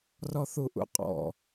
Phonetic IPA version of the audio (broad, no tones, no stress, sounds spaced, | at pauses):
r ɔ θ u ʔ ṵ qʼ ɔ̰